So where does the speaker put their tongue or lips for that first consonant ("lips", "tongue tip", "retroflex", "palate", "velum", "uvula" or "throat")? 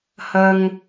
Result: throat